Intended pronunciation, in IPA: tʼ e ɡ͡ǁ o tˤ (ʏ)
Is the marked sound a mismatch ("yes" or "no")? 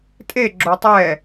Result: yes